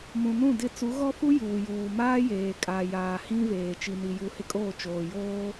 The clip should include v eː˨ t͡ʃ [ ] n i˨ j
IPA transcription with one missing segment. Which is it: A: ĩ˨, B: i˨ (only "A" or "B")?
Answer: B